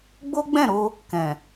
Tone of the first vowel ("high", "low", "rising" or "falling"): high